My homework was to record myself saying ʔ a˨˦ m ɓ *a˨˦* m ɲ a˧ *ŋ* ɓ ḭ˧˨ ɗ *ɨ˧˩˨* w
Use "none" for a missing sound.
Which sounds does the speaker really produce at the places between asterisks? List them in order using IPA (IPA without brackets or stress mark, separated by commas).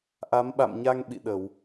a̰˧˨, ŋ, ə˧˩˨